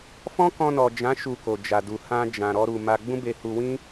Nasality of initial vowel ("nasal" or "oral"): nasal